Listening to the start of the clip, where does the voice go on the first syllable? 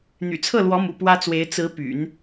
low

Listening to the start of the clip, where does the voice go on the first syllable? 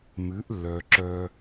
rising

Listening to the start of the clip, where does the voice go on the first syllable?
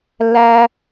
high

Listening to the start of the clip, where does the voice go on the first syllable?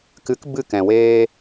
rising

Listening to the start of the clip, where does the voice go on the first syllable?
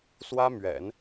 high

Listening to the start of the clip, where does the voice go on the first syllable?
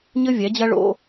high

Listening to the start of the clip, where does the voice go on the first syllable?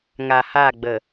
low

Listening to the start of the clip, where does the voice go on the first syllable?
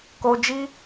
low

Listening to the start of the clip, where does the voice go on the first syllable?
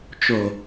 low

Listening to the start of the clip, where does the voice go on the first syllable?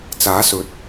rising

